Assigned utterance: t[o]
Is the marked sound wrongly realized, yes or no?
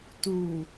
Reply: yes